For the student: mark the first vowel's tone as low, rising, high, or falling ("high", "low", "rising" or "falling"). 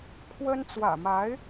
high